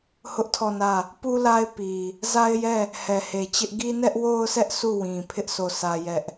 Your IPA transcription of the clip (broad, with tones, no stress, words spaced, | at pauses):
hʊ˦ʔtʰɔ˦˨nä˦˨ | pu˦la˦ɪ̯pi˨ | za˦ɪ̯jɛ˦˨ | hɛ˨he˨t͡ɕɪ˦ʔ ɡi˦nɛ˦ʔwo˦ʊ̯sʰɛ˦ʔ sʰu˦˨wĩ˨pʰɪ˦ʔ so˦˨sʰä˦jɛ˦ʔ